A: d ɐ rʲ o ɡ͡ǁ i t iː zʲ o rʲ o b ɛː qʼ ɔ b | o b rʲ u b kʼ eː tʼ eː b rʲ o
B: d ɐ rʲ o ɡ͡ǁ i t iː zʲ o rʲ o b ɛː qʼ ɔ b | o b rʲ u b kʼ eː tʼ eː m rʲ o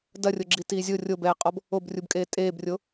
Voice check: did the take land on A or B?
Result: A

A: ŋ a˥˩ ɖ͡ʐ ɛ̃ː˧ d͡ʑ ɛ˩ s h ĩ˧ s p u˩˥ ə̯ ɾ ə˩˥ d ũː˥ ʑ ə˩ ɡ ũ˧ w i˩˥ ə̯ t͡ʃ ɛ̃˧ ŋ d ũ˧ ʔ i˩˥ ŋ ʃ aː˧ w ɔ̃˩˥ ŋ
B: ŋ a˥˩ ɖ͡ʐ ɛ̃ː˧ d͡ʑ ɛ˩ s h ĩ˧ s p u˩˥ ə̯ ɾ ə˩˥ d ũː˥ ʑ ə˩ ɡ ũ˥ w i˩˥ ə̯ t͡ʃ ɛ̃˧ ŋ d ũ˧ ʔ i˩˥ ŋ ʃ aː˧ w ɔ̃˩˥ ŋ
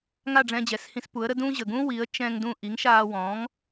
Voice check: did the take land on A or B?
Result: B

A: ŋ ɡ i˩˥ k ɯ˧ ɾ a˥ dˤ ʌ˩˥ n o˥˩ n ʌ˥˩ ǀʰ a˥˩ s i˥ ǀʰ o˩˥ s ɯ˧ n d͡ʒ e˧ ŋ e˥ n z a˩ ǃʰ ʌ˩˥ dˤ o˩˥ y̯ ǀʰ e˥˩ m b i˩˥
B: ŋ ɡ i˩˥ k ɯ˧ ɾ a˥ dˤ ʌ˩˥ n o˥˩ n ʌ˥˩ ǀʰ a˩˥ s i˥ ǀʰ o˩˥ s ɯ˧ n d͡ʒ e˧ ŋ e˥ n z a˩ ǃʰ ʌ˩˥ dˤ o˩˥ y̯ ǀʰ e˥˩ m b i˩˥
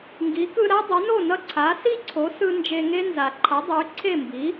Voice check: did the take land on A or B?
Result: B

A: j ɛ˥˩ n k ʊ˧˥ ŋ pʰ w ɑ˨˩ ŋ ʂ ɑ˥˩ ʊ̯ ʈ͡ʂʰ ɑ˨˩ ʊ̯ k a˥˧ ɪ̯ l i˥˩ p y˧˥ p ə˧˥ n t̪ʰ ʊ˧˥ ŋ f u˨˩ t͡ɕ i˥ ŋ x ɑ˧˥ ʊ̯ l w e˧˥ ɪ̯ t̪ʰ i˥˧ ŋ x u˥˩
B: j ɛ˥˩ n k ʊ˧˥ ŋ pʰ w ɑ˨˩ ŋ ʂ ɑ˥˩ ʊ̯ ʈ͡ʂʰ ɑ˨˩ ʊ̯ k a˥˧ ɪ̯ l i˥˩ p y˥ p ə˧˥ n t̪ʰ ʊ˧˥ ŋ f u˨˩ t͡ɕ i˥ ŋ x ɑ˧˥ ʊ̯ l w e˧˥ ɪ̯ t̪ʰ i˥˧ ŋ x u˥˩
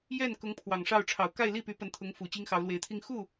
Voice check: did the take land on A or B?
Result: A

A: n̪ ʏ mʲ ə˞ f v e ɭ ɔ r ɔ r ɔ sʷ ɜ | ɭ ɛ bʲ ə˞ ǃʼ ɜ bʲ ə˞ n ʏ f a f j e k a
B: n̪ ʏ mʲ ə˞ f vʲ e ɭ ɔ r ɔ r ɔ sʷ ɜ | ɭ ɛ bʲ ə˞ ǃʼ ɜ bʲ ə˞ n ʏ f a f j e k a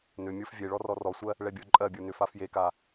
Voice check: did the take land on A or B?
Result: B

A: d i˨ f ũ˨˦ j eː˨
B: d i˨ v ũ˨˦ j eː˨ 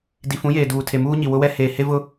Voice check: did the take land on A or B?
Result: A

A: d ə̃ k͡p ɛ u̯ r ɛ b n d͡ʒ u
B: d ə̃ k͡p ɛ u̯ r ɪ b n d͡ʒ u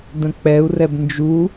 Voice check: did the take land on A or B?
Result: A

